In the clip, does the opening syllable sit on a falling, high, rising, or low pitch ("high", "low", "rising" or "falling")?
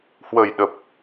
low